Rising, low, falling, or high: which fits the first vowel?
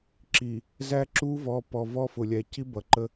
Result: low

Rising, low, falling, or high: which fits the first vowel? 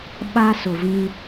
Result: high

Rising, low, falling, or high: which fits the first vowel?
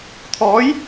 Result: rising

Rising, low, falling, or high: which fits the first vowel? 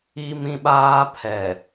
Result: high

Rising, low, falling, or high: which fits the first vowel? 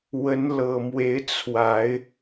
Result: rising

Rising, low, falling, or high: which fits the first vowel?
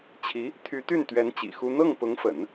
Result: rising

